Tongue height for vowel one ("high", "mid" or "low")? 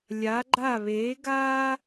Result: low